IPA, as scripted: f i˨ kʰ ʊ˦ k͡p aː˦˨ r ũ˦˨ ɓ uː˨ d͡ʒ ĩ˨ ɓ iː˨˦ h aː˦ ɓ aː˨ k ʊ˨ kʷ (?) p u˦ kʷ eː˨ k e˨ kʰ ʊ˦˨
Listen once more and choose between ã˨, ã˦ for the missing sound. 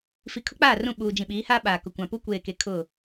ã˨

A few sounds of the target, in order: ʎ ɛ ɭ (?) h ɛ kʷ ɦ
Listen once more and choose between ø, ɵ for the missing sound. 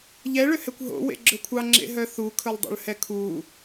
ø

